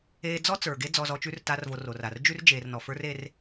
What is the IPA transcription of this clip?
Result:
eː˧d͡zɔ˦ t͡sə˞˨ɡe˦ d͡zɔ˧zɔ˧t͡ʃʉ˦r ta˦rvo˧ro˨ra˨r d͡ʒʉ˦r d͡ʒeː˨rnɔ˨fə˞˦r e˦r

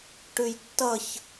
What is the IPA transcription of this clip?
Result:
ʈʉjtːʌç

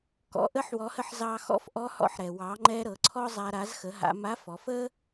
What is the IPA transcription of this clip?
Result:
kɔ̰˩˧ʔə˧˥ħwɔ˩˧hə˧ħ zɑ˧xɔ̰˧˥fʔɔ˧˥hɔ̰˧ħ ɾɛ˩wɑ˩˧ŋ͡ǃɛ˧ ɾɤ˩˧ǀʰɔ˥zˤa˧ ɾa˩˧zxə˩˧ ɦa̰˩˧ ma˧˥fɔ˩˧fə˥

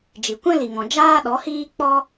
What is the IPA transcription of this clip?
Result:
d͡ʒi˨ kʷɛ̃˦li˨ŋɔ̃˨ d͡ʒaː˦ɗɔ˨˦hiː˦ k͡pɔ˦

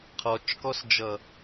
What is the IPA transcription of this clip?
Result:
qʰɔt͡ʃkɔsd͡ʒʌ

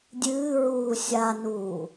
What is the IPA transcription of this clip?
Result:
dʲɨːɹuː sʲanuː

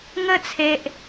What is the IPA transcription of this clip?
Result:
ŋə˥˧t͡sʰe˨ʔ

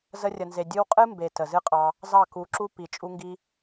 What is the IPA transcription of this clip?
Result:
zə˧rʲə˨nze˨ dʲɨ˦w qʼɨ˦mbe˨ tə˨zɨ˦qʼɑ˧ | zɑ˦˨ku˨˦ǁu˦ pi˨ t͡ʃʼu˧ŋɡi˧

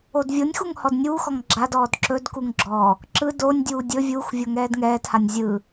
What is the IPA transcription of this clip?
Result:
odvʲonʲxuŋ hɔdnʲuːxɔŋ ɡ͡ǁadɔːd ǁɵdkuŋ ɡ͡ǁɔ | ǁɯ donʲdʲuː dʲɵ vʲuːxvʲo ŋɛːdŋɛːthanʲ zʲɯ

